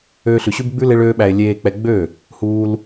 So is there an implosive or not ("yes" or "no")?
yes